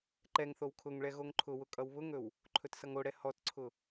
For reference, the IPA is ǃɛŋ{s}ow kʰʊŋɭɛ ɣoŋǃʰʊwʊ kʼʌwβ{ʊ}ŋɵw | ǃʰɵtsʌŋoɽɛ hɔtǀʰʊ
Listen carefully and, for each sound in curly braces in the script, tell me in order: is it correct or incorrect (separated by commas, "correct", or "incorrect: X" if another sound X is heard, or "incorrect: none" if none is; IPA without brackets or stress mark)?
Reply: incorrect: θ, correct